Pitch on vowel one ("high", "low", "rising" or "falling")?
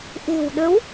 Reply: low